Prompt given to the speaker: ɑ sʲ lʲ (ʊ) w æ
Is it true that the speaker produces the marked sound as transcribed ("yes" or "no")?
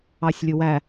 yes